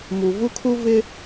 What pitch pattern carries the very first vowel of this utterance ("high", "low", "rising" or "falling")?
low